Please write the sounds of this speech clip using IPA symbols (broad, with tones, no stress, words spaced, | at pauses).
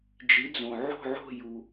d͡ʒi˨˥d͡zõ˨ ʕo̤˥˧ʕo̤˥˧ju˨